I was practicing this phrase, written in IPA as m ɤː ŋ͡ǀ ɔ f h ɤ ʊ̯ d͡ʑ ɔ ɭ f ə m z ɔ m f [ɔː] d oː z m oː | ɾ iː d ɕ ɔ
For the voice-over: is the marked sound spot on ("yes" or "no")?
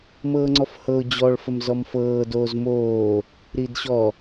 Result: no